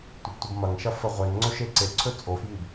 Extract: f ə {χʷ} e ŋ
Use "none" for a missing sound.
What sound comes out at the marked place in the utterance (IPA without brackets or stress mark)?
ʁʷ